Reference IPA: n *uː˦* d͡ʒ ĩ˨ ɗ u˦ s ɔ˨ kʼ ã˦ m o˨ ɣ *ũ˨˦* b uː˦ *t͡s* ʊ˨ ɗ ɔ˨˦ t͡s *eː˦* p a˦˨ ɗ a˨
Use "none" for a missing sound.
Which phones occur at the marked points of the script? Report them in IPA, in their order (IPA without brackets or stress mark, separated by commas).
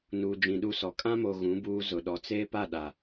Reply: uː˨, ũ˨˦, z, eː˦